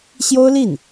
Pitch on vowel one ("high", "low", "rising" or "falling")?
high